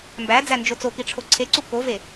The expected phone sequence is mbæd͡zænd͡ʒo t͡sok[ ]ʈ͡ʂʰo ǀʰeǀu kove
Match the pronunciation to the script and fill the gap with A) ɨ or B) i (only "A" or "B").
B